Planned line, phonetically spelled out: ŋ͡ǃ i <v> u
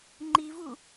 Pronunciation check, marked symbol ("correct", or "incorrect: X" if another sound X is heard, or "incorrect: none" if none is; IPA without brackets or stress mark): correct